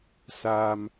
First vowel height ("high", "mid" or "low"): low